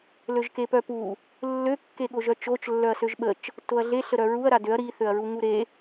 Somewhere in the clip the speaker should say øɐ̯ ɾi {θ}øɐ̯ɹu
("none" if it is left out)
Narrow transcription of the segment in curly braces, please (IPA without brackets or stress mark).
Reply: θ